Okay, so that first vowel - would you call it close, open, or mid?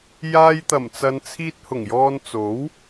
open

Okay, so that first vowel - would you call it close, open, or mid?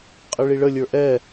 close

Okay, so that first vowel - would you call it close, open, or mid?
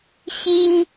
close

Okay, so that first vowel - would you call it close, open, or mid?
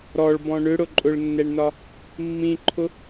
mid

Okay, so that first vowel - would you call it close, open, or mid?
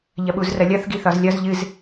open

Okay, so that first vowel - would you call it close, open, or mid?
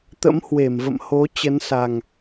mid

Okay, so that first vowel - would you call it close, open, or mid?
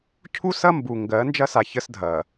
close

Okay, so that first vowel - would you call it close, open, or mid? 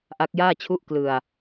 open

